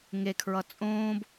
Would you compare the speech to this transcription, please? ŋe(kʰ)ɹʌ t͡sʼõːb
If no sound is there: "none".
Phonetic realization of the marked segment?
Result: kʰ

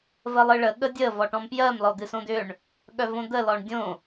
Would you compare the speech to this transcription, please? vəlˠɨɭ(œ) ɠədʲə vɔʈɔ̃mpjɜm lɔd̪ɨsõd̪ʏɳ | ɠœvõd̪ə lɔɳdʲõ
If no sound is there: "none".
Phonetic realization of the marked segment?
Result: ə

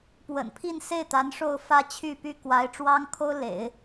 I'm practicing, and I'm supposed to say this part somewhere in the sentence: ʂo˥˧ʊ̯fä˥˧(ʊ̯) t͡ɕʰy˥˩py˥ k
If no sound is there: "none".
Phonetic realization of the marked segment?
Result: none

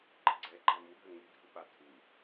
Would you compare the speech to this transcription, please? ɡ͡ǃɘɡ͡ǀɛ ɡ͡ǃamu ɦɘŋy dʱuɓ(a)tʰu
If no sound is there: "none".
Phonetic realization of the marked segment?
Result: a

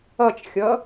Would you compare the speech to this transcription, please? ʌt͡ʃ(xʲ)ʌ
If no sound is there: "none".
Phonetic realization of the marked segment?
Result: xʲ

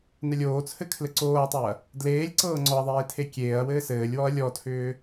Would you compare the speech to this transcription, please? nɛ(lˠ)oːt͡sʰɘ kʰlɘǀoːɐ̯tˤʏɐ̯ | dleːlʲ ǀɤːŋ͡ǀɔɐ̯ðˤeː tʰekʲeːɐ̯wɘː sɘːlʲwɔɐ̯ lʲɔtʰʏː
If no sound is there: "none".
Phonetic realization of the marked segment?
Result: lʲ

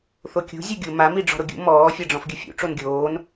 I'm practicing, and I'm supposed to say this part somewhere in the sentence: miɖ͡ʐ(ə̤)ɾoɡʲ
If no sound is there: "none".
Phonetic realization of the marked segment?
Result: ɔ̤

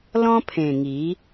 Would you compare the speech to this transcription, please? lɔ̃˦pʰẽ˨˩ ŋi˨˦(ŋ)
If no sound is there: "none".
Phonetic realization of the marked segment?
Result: none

